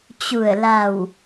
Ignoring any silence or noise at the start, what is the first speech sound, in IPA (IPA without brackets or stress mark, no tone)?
t͡ɕ